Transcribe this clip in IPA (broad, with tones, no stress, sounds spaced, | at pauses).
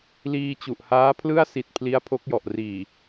l iː˧ t͡ɕ u˨˩ ʔ h aː˦˥ pʰ l ɯ˥˩ a̯ s i˦˥ t̚ pʰ l i˦˥ a̯ pʰ o˦˥ k̚ j ɔ˨˩ ʔ r iː˨˩